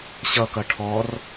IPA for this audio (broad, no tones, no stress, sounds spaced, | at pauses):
ɕ ʌ k ʌ ʈʰ ɔ r